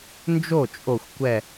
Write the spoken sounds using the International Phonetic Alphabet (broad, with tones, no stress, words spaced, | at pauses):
nd͡ʒo˥˩t͡ʃʼo˧˩xʷ kʷɛ˧˩